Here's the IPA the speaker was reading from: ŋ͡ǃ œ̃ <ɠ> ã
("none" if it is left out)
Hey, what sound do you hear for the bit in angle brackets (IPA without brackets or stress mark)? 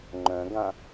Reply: ɡ